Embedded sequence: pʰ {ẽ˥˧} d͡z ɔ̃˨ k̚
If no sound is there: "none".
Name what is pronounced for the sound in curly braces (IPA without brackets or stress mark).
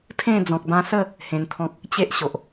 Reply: ẽ˥˧